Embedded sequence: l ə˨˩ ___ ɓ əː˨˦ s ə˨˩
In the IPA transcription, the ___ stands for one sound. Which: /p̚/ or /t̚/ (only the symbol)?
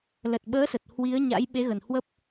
t̚